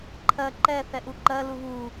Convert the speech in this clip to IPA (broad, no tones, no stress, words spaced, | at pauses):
ǃʰɜ ǃɛ θɛʔuǃɜ luβu